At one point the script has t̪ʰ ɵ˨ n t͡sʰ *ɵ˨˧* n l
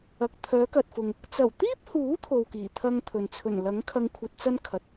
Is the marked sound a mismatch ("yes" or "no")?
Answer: yes